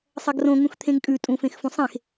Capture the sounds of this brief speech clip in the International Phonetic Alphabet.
sˤ ɐ ɡ r õ ŋ ũ x t̪ʰ ẽ ŋ kʼ ʉ tʼ ũ f ẽ x f ũ sˤ ẽ x

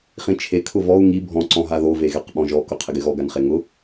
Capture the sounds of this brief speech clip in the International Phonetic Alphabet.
χ ĩ t͡ʃʰ e kʰ ʊ v ɔ u̯ ŋ i bʱ ɔ̃ ǀ ɔ̃ ɦ a ð o v e ɣ ɛ q ɓ ɔ̃ ʒ ɔ k ʊ qʰ ɪ ɡ ɪ ɣ ɔ ɡ a n χ e ŋ ʊ

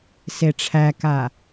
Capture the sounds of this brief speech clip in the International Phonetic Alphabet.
s e ʈ͡ʂʰ æ k a

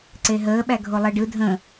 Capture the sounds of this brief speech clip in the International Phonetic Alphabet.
ǀ e ɦ əː ɓ æ ɡʱ o lˠ ɜ ɖ ɯ dʱ ə̃

